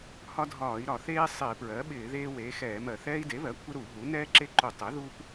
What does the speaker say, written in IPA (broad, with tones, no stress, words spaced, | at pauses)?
hɒ˦dʱɒː˧˩˧i̯ɾɒ˧˩˧ θeː˦ sˤɪː˧˩˧pɹɜ˩˥ ɓɪː˧˩˧ðeː˦ weː˩˥xɛː˧˩˧mɜ˧˩˧ θɛː˦i̯de˩˥βɜ˩˥kʷʰɪ˦ ɾu˧˩˧ɦu˩˥ nɛː˦ǁe˦ ǃu˧˩˧ tˤe˩˥ðu˦p